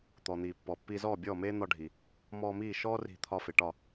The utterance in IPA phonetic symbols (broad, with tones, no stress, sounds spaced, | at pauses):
t̪ ɔ˩ n̪ iː˩ pː ɔ˩ pː i˧ z ɔː˥˩ bʲ ɔː˥˩ m eː˥ n̪ ɒ˧ ɖʱ i˩ | m ɔː˧ m iː˥˩ ʃ ɔː˥ r i̤˧ t̪ʰ ɒ˧ f e˩ ʈ ɒ˥˩